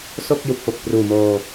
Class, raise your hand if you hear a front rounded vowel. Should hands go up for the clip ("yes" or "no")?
no